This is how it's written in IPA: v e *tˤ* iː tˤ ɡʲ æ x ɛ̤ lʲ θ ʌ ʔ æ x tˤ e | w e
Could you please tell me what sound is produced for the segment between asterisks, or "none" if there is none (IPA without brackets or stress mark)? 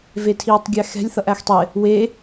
tʰ